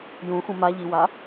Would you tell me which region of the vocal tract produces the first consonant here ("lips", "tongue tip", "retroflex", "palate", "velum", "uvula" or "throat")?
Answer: palate